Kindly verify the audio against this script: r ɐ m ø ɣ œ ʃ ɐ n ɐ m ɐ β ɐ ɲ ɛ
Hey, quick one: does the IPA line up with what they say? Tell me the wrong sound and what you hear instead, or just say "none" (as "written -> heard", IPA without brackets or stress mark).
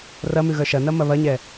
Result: ø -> ʉ